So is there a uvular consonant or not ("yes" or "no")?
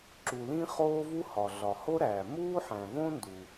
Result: yes